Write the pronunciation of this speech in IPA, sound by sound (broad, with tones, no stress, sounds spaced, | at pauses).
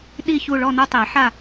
ɗ i˦˨ ç u˦˨ ɭ ɔ˦˨ n o˦˨ tˤ e˨˩˦ ħ a˦˨